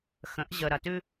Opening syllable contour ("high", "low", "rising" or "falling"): rising